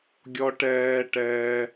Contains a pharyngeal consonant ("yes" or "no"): no